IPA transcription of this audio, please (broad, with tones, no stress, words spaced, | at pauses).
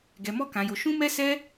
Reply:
ɡɛ˧mɔ˦kã˧jo˧ ʃũ˦mɛ˦sɛ˦